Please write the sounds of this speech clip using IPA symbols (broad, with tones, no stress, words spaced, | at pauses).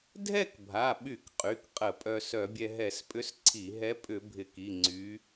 dʱɛ˥˧kbʱa˩˧˩ɓy˧˩˧k qʼy˩˧˩kqʼə˧˩˧pʼœ˧ sœ˧˩˧bʲɛ˧ɦɛ˧˩˧spʼʏ˧˥s ǀʰi˧˩˧ɦɛ˧˥ pʼʏ˧˩˧bʱɪ˧˩˧ki˩˧˩ ŋ͡ǀy˧˥